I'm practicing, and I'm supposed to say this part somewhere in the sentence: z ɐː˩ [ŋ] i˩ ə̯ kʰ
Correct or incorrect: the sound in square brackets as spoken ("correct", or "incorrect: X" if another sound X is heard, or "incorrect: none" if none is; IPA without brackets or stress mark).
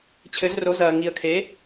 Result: correct